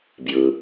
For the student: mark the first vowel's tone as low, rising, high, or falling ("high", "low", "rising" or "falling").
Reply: low